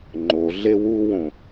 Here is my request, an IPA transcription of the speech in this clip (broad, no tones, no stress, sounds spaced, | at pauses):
ŋ͡ǃ o ɮ e w u w õ